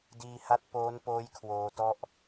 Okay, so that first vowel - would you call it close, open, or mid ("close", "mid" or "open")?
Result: close